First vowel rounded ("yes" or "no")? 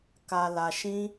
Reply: no